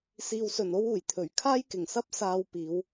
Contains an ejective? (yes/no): no